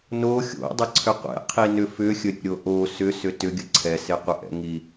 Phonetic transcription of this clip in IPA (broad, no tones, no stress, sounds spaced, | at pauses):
n o xʲ o̰ dˤ ə ǀʰ ʏ qʷ ɛ̰ qʰ i n ʏ f ʏ xʲ ə ɾʲ o̰ ɾʲ o ʔ o s ʏ s ʏ t ʏ ɡʲ ə ǀʰ ɛ s e qʷ ə ʔ ɛ̰ ŋ i